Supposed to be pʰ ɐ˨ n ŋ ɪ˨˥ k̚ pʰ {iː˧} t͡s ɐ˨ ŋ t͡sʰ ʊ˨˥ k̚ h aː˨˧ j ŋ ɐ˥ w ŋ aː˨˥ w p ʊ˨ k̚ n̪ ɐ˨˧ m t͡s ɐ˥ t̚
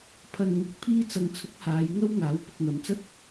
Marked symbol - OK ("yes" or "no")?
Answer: yes